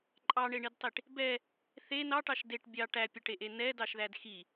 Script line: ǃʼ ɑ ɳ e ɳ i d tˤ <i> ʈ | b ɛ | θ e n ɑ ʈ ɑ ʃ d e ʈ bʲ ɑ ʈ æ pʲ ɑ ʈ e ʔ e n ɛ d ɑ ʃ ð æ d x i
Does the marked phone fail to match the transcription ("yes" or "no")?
no